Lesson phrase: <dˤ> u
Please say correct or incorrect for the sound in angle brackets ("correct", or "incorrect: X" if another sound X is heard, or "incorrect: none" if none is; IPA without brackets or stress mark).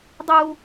correct